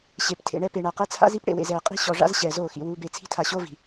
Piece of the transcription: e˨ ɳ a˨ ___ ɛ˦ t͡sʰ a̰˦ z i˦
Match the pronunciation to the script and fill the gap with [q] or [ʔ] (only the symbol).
q